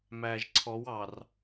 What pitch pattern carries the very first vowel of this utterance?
low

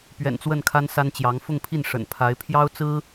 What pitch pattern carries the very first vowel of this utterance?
low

